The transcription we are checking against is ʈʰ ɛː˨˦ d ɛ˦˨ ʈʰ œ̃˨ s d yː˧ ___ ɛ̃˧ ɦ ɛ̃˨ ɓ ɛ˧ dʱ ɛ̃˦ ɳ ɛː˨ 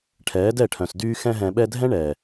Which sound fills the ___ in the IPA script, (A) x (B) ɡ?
A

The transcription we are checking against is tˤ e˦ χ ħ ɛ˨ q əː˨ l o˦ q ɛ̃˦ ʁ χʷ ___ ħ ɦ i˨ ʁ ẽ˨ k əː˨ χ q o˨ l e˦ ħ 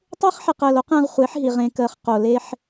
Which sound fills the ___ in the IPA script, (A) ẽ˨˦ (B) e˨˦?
B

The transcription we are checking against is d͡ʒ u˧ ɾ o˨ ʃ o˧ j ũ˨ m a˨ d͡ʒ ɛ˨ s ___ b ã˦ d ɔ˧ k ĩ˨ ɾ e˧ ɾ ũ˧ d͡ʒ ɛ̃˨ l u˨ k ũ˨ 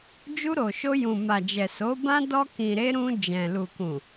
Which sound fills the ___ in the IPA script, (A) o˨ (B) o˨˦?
B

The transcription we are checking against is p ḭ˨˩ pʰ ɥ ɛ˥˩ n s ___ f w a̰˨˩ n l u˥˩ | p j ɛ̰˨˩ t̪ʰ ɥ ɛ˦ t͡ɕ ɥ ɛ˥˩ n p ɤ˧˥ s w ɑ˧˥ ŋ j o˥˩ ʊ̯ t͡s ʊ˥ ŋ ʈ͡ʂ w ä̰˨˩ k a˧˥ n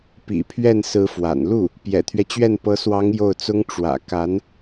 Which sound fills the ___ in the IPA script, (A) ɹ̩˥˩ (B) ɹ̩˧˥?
B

